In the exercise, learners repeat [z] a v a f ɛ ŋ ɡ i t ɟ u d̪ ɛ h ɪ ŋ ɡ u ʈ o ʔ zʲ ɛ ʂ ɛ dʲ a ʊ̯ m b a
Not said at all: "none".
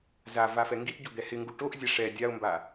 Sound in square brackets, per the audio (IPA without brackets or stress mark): z